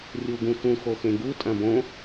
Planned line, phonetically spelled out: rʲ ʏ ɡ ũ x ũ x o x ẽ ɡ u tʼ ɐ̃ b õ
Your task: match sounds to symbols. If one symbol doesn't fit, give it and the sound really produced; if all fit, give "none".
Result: ʏ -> u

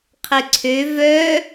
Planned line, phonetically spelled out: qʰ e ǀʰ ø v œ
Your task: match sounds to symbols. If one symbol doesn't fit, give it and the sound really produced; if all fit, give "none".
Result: none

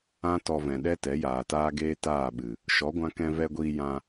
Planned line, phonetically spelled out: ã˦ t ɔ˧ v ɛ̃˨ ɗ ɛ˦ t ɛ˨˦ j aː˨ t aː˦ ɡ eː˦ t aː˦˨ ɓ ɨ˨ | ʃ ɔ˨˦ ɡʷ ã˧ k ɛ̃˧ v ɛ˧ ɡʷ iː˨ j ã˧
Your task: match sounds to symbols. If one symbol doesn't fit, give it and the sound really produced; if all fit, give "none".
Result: iː˨ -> iː˧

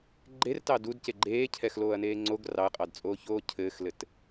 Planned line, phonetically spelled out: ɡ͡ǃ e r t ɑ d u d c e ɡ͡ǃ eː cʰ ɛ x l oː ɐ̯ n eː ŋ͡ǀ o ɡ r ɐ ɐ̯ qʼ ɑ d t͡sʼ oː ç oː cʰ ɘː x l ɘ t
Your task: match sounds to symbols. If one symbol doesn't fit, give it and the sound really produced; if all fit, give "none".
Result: ɐ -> ɑ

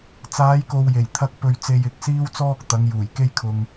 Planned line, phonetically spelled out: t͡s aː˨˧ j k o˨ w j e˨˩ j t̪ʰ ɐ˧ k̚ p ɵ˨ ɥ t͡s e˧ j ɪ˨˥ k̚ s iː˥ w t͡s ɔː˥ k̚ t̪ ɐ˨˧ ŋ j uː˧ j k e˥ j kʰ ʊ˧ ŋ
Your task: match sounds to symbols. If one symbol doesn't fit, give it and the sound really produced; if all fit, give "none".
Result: uː˧ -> uː˨˩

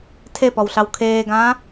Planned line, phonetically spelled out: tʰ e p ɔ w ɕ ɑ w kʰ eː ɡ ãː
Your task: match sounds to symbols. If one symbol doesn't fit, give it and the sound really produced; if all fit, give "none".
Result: ɕ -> ɬ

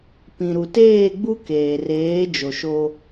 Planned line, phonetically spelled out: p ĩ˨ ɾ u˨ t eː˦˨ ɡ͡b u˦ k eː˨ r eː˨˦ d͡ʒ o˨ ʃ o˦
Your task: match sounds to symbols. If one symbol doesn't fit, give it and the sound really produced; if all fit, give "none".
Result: none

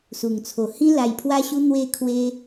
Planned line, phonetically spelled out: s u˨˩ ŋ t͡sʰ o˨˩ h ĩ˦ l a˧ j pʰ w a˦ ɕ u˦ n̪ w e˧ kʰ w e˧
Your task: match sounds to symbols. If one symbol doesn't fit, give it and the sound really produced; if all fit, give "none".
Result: none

